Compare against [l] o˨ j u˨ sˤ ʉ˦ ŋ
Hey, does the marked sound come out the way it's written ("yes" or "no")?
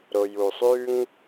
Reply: no